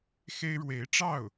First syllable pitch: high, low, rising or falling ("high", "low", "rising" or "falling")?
high